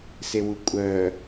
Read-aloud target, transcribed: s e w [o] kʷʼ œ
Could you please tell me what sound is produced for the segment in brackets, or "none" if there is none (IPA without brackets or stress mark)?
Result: u